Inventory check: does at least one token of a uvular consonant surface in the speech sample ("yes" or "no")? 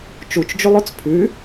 no